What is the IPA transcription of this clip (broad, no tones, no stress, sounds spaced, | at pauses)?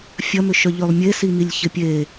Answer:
fʲ ɐ m ʏ ʃ œ ʎ ø lˠ mʲ e s i m i lʲ ç ɪ pʲ e